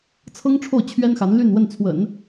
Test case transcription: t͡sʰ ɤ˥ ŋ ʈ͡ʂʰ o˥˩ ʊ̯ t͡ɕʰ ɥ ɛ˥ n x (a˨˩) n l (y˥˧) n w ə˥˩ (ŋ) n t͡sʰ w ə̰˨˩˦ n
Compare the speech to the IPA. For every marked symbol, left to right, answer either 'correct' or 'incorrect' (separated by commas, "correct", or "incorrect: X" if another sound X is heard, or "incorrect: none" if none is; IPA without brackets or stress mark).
incorrect: a˧˥, correct, incorrect: none